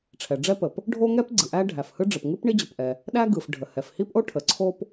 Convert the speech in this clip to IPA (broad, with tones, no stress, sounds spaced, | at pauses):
ʈ͡ʂʰ ɛ˩ ɖ͡ʐ ɛ˥ p ə˩ p | ɖʱ o˥ ŋ ɛ˥ p ɡ͡ǀ ɯ˩ ʔ æ˥ ɖʱ æ˩ f h ɯ˥ ɖ͡ʐ ə˩ p ŋ ɯ˥ p ɳ i˥ d͡ʑ ə˩ p ʔ ɛ˩ | ɗ æ˥ ɡ ɯ˩ f ɖʱ ə˩ h ɛ˩ f h i˥ p ʔ o˥ ʈʰ ə˩ ǀʰ o˥ p